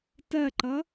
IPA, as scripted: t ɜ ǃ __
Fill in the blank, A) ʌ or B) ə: A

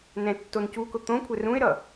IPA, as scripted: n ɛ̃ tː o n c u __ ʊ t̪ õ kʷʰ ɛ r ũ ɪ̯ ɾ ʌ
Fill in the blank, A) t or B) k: B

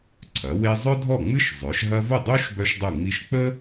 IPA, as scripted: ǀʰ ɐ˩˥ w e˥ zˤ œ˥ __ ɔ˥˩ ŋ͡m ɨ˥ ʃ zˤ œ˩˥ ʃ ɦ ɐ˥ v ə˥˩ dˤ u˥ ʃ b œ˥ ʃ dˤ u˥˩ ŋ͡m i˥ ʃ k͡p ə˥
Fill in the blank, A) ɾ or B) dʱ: B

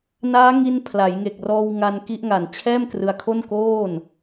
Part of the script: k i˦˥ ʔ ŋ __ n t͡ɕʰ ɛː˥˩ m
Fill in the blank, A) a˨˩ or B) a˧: A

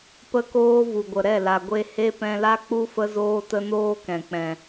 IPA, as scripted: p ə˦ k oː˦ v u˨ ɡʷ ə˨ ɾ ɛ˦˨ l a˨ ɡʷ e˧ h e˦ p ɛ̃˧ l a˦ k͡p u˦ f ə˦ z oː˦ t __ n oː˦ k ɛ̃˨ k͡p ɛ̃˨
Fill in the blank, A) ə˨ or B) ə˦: B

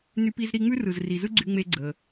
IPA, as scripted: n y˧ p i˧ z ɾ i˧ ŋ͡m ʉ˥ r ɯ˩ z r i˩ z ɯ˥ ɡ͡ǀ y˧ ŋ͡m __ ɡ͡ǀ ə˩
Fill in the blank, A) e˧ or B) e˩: A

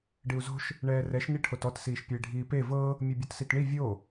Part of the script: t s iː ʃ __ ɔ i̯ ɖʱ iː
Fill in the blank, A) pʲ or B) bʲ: A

